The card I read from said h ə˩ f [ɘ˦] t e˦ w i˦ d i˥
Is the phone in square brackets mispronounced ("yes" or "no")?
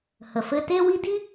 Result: no